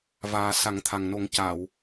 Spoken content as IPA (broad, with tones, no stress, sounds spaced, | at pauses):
v aː˨˩ s a˨˩˦ ŋ t̪ʰ a˨˩ ŋ n o˨˩˦ ŋ c a˨˩˨ w